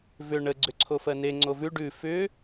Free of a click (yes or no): no